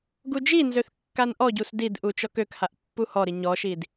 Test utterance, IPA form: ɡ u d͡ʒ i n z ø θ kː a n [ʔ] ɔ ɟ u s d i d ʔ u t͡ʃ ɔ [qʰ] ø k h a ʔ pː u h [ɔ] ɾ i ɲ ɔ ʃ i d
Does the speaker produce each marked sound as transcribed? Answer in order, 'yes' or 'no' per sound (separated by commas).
yes, no, yes